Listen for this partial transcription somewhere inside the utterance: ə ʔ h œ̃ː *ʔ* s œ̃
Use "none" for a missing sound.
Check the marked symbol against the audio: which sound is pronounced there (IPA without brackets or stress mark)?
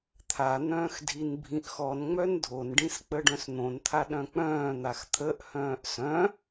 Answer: ʔ